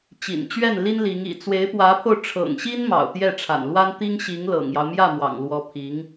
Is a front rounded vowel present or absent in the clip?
absent